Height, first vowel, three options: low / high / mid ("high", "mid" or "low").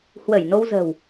mid